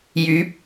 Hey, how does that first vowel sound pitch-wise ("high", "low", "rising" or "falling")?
rising